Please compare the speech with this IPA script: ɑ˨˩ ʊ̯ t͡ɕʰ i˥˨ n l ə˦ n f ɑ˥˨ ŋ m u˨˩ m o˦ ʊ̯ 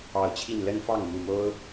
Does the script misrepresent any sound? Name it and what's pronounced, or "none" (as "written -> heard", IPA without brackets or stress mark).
none